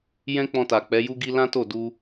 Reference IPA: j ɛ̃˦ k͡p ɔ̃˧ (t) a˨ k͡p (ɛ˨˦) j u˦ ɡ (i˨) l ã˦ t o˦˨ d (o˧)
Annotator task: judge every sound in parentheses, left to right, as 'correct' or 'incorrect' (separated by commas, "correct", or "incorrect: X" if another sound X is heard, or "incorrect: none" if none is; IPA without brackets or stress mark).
correct, correct, incorrect: i˦, incorrect: u˧